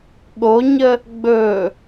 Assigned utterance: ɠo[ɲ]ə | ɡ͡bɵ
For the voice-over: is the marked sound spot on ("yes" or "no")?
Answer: yes